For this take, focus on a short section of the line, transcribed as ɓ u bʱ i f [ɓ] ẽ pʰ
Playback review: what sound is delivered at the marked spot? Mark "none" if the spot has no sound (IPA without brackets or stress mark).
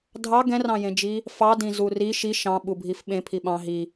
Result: ɓ